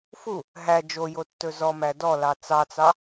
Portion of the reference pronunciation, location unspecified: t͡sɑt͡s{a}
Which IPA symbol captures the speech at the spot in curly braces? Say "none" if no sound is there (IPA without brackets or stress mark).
ɑ